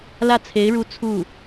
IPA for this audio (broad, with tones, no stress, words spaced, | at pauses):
lä˥˩t͡sʰe˧˥ɪ̯ɻu˧˥ t͡sʰu˥˩